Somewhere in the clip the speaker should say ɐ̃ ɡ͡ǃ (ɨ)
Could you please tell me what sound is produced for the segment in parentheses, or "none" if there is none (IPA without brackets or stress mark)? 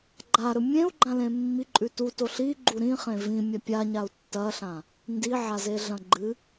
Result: ɨ